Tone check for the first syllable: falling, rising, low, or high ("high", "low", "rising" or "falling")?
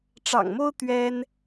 low